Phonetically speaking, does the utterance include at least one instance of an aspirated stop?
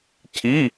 yes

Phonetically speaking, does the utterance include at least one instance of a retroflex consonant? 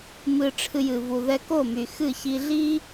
yes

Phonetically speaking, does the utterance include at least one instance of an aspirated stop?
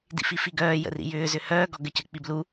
no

